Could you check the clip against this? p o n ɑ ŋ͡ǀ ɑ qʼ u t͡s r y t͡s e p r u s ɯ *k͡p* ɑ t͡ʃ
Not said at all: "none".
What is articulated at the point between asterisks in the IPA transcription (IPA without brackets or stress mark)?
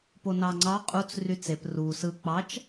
k͡p